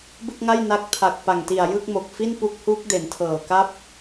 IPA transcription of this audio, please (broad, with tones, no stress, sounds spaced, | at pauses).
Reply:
b ɯ˥˩ k̚ ŋ a˥˩ j n a˦˥ k̚ tʰ a˨˩ k̚ p a˨˩ ŋ t i˨˩ a̯ j ɯ˥˩ k̚ m o˨˩ k̚ f i˥˩ n p u˦˥ k̚ h u˦˥ k̚ d e˩˦ n tʰ ɤː˨˩ k a˥˩ p̚